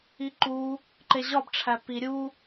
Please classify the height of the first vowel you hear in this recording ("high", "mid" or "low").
high